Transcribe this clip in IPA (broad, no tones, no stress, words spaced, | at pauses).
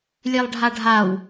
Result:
lʲelˠɖʱaɖʱaw